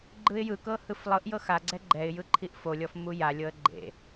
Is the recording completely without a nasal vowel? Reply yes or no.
yes